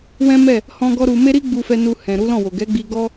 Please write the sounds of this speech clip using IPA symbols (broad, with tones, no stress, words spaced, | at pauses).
wɛ̃˦ mɛ˦˨ | hɔ̃˦ɡɔ˦ ɾu˧ me˦ɾi˦ɡ͡bu˧fɛ˧ nu˧hɛ̃˨ ɾu˨˦lɔ̃˦˨wo˨ ɡɛ˨˦ɡ͡bi˧ɡɔ˦